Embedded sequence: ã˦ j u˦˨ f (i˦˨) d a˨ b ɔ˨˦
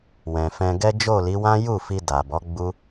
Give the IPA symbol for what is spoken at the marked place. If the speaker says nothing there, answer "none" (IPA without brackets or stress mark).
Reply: i˧